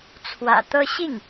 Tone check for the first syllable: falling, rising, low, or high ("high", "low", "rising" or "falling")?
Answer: low